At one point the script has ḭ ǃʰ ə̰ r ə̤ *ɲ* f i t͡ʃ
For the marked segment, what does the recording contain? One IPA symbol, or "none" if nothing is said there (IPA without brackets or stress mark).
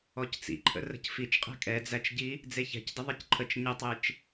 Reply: c